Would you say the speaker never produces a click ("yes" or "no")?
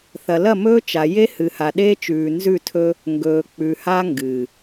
yes